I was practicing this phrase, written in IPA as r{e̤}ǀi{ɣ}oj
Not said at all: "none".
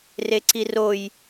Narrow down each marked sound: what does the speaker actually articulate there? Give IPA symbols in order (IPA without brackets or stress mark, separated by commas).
e, r